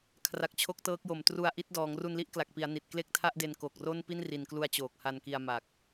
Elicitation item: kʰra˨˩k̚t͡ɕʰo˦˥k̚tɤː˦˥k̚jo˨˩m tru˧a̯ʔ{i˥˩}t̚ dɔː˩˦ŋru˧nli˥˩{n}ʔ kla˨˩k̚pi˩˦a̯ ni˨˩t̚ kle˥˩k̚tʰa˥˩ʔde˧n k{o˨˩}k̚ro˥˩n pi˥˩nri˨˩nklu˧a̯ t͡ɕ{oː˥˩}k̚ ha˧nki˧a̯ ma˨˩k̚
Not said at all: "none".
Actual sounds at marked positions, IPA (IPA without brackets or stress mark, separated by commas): i˦˥, none, o˨˩, oː˨˩